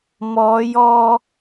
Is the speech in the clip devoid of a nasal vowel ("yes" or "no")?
yes